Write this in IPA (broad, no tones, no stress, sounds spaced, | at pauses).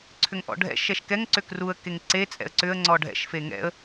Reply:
ǀʰ ʏ ŋ ʔ ɔ̰ ɖʱ ɛ̰ ʃ ɛ ʃ k ɛ ŋ ǀ ʏ k r u ə̯ k e ŋ ǀ e t͡sʼ ɛ̰ ə̯ ǀ ʏ ə̯ ŋ͡ǀ ɔ ɖʱ ɛ̰ ʃ f e ŋ ɛ̰ ə̯